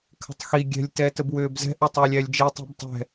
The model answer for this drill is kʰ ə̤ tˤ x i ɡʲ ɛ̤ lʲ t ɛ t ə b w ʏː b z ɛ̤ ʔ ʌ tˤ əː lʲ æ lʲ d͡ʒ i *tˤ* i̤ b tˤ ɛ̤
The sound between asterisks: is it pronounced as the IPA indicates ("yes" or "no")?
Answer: yes